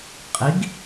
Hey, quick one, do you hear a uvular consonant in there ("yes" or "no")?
yes